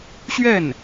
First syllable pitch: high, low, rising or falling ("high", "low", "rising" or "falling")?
falling